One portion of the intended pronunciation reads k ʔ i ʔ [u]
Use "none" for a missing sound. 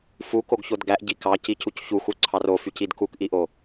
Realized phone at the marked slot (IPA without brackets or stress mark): o